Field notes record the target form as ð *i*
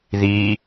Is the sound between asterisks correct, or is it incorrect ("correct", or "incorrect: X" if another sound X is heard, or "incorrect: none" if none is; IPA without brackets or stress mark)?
correct